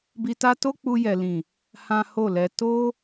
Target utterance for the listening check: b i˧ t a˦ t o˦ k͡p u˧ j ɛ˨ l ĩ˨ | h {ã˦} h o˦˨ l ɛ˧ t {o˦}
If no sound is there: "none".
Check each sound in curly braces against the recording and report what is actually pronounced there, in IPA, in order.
ã˦, o˦

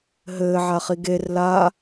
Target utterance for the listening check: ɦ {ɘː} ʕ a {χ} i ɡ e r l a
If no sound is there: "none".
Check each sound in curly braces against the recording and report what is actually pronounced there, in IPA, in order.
ɘː, χ

